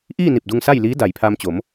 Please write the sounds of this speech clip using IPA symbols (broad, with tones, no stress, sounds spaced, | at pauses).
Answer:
ʔ iː˥˨ n i˧˩ p̚ d u˧ ŋ s a˥˨ j l iː˧˥ d a˩ j pʰ aː˧ m t͡ɕ o˩˧ m